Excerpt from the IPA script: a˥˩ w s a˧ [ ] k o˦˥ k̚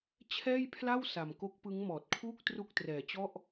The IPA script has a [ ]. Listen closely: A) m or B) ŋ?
A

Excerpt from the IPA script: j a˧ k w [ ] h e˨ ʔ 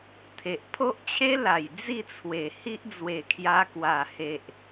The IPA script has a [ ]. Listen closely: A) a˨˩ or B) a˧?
A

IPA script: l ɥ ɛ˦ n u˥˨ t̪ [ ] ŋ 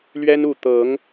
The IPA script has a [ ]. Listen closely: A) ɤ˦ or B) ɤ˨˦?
B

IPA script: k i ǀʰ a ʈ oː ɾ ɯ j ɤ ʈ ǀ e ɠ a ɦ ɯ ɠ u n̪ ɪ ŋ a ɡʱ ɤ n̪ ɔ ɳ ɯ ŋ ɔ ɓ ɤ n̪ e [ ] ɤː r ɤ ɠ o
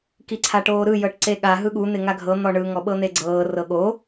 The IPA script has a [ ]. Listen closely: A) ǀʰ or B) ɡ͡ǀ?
B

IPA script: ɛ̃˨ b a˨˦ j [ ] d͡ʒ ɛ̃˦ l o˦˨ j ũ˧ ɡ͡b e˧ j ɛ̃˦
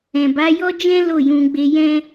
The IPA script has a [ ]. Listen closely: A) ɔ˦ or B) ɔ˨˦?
A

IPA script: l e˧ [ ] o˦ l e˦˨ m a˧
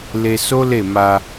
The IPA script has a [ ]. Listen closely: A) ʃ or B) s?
B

